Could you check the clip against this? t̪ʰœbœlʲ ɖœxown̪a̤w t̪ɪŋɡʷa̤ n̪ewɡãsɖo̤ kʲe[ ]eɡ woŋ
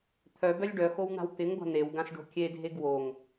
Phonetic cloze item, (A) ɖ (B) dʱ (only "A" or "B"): B